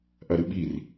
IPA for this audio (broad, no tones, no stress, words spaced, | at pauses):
ʔɐɾɨɓir